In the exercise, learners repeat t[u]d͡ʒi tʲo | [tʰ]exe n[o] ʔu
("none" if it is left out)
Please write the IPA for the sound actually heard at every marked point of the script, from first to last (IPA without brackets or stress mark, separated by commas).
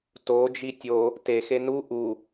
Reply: o, t, u